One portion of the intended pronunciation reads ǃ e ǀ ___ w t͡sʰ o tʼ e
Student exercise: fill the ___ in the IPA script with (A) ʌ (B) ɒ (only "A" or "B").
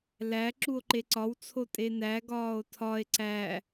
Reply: B